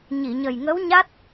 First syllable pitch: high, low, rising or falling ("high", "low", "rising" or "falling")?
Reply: low